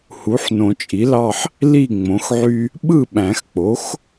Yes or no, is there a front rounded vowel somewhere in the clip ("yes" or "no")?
yes